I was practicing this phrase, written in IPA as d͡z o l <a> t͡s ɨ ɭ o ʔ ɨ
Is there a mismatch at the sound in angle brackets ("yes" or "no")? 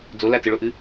no